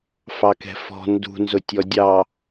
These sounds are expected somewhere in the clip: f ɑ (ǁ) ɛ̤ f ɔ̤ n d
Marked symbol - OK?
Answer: no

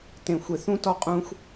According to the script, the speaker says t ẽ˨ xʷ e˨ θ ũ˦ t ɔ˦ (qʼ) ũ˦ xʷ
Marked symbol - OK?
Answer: yes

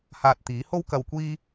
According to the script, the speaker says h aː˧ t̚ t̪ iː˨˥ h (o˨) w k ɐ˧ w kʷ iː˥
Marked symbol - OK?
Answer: no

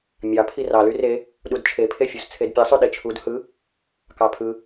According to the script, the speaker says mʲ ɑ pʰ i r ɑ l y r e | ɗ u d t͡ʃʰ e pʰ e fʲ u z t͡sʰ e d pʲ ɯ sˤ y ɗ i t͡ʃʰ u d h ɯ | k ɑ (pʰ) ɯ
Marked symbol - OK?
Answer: yes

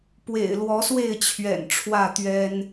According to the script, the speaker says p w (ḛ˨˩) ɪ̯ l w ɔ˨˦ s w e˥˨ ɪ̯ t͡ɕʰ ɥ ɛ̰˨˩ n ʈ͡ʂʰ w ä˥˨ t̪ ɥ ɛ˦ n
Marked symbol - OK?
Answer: yes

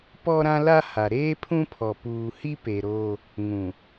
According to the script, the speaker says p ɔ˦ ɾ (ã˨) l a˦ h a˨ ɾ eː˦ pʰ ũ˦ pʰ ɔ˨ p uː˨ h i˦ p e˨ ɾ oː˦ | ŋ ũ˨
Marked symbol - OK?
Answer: no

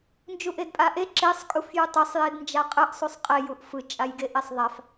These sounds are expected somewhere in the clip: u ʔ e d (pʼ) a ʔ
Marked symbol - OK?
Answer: yes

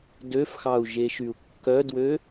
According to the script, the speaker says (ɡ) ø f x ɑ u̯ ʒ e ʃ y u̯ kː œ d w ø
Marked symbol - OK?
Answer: no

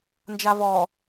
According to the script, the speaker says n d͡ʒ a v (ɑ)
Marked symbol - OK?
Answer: no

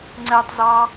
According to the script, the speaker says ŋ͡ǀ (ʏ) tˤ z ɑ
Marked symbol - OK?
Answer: no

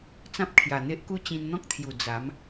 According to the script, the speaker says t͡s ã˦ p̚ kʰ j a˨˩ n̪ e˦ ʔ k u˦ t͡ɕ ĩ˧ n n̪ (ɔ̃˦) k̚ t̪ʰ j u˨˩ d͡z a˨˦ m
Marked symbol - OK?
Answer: yes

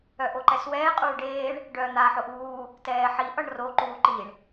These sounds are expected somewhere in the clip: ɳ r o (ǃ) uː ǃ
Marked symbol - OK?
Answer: yes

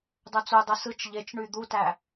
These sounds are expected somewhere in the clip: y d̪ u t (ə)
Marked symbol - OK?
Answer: no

